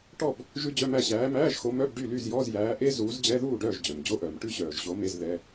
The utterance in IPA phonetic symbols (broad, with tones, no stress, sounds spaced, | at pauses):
ʈ ɔ˥˨ b | ʒ ʉ˦˥ d͡ʑ œ˧˥˧ m æ˥˨ ɕ æː˨˦ m æː˧˥˧ ʒ x o˨˦ m œ˧˥˧ b ɖ y˥˨ l y˥˨ z j ɔ˧˥˧ z j æː˨˦ ʔ e˦˥ z uː˨˦ z d͡ʑ ɛ˧˥˧ ð uː˥˨ ɖ œː˥˨ ʒ d͡ʑ œ˩ m d͡ʑ o˧˥˧ ʔ œː˩ m ʈ ʉ˦˥ ɕ œː˩ ʒ ɕ o˨˦ m e˧˥˧ z ð ɛ˧˥˧